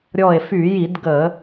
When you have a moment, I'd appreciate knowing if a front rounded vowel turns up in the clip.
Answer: yes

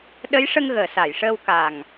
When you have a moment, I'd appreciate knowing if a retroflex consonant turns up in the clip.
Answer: yes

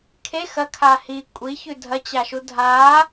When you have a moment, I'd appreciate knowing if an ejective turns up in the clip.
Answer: yes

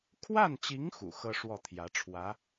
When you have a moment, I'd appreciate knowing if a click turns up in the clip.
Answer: no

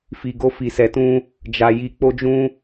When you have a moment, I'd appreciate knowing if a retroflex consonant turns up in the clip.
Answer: no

